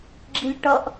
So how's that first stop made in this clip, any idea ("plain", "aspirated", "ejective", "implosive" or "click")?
click